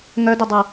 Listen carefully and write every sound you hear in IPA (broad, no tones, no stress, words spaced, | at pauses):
ŋœdœdˤa